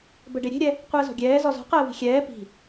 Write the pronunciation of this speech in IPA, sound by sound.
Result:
bəɖe ɾʲe̤ɾʲɛ | qʷəːzɔ̤ɡʲɛː zɔzɔ̤qəː vi̤xʲɛː pi̤

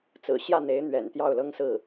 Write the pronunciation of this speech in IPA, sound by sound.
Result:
t͡sɹ̩˨˩ ɕjä˥˩n̪e˧˥ɪ̯ n̪ɥɛ̰˨˩nt̪jɑ˥˩ʊ̯lɤ˥ŋ sɹ̩˥˩

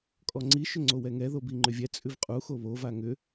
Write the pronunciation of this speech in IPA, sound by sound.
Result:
kʼɔŋ͡ǀi ʃʏŋ͡ǀowɛŋɛ ðobiŋ͡ǃʏvʲɛ t͡sʼʉvqʼu xoβo vaŋʏ

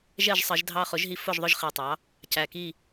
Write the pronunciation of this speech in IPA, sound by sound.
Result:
ʒɛ˥˨ʒsˤə˨˩˦ʒ dʱɑ˦χʊ˩˥ʒɦi˦ fʊ˥˨ʒðˤʊ˦ʒ χi˨˩tˤɑ˩˥ | cæ˨˩ki˥˨

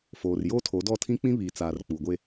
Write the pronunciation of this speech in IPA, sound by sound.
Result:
foː˨rjoː˦tʰo˨˦ dɔ˦˨tʰĩ˦k͡pĩ˦ βiː˨t͡saː˨r k͡pu˨ɡʷe˦

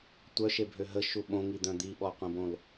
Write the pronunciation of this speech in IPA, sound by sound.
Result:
tʷœʃebʱø ɦəʃu ɓõŋid̪œ̃ d̪iɓɔqʷẽbõl

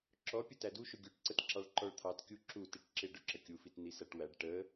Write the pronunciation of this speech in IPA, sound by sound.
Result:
ǁɔpʲə tæduʃʊ ɡʲuʈǀət ǁɑɭǃɔɭt̪ʰɑt kʲuǁu tiʈǁɪ ɖʊǁəkʲufit n̪isæʈwæɖ ʈə

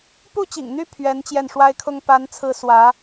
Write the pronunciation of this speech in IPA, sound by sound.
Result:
pu˥˩t͡ɕḭ˨˩ŋn̪y˥˩ pʰɥɛ˧˥nt͡ɕjɛ˥˩nʂwa˥ɪ̯kʰʊ˥ŋ pa˧˥nt͡sʰɹ̩˧˥ swä˧˥

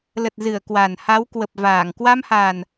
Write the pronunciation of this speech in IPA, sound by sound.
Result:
lə˨˩t̚zɨ˧˩ə̯ kwa˨˩n ha˨˦wkwə˨˩p̚ vaː˧˩ŋ kwa˧mha˨˩n

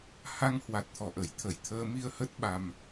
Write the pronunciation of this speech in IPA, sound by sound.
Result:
ha˧ŋhwa˨˩t̚ t̪ʰɔ˧˩ʔə˧˩jt̪ʰə˧˩j t̪ʰəː˧mi˧ə̯hə˦˥t̚ ɓa˧m

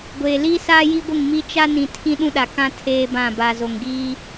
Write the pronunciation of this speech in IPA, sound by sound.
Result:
ɡʷeː˨liː˦saː˦ ji˦ɡʷɪ˦˨ŋmi˦ t͡ʃa˦ nĩ˨ tʰĩ˦ɗũ˦ɗa˨kã˦ tʰeː˦bã˦˨ ba˨zo˨ŋɡiː˦

